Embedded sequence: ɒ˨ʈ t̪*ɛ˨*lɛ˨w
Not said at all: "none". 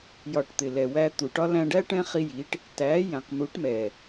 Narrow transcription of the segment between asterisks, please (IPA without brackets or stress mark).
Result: ɪ˨